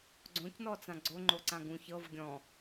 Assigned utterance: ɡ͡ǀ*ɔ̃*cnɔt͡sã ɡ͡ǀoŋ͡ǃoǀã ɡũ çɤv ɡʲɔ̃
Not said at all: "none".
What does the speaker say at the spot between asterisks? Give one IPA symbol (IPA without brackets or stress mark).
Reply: õ